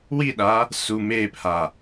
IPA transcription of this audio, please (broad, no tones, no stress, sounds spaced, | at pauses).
w i ɗ a | s u m eː p h a